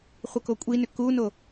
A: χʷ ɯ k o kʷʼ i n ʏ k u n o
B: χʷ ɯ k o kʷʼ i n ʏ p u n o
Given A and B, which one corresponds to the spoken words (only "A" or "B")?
A